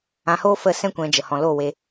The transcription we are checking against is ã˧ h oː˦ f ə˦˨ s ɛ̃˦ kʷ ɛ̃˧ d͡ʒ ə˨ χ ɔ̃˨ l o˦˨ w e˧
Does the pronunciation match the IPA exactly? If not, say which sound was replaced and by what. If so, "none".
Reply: χ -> h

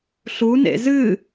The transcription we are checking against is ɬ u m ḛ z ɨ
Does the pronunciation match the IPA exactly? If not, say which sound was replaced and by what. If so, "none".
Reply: m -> n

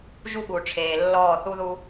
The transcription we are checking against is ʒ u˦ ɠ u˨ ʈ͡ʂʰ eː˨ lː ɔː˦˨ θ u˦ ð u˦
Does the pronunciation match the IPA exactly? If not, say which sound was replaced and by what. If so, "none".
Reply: none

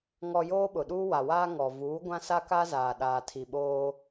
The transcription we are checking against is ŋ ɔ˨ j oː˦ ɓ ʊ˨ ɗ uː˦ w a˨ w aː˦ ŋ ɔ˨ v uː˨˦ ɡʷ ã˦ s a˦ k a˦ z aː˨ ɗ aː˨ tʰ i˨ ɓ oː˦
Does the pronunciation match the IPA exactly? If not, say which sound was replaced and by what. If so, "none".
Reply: none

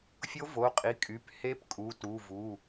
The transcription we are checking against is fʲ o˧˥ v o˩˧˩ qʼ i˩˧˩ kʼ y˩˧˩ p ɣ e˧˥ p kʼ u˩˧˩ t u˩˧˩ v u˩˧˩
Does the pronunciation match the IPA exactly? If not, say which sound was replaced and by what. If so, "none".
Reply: ɣ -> h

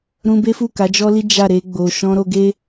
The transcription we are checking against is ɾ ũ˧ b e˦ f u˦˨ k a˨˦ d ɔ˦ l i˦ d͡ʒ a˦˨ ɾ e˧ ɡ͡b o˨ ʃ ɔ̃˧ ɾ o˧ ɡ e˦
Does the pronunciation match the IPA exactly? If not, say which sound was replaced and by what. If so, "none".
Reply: d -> d͡ʒ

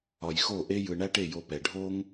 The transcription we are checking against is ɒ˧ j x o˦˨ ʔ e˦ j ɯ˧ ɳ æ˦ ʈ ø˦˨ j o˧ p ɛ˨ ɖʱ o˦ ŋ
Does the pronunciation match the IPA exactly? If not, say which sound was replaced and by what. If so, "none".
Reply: ø˦˨ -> e˦˨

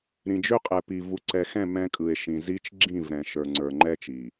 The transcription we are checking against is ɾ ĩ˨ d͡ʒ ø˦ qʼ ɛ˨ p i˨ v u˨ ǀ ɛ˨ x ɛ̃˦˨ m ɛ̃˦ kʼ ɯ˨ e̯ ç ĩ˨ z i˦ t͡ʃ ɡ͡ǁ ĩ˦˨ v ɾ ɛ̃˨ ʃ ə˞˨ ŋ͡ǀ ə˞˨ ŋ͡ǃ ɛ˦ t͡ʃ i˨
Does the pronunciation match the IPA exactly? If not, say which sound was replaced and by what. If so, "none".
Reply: ç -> ʃ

